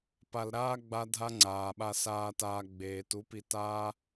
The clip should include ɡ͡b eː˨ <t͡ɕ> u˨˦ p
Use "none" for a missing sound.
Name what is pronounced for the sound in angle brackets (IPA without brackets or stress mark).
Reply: t